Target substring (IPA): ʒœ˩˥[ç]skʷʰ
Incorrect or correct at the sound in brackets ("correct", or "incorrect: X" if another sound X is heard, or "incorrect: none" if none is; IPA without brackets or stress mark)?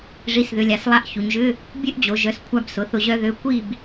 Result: incorrect: none